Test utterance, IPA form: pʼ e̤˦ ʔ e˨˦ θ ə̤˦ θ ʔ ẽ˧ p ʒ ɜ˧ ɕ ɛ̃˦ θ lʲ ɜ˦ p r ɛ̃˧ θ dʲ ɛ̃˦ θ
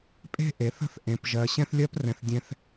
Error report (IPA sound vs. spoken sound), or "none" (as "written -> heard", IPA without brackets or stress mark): none